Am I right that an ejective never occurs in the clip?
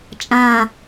no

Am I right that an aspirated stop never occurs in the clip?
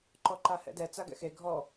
yes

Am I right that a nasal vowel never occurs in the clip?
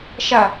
yes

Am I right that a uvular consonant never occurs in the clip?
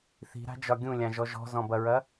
yes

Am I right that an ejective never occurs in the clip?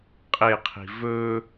no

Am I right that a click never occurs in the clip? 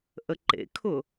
no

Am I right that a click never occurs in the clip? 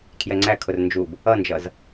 no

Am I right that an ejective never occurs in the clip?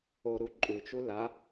no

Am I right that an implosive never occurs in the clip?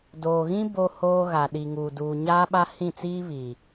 no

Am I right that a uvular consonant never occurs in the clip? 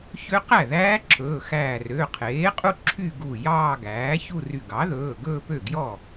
no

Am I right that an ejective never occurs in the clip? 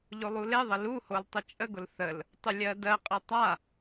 no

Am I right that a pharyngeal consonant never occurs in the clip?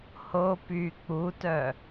yes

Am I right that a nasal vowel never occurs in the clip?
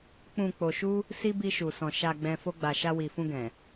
no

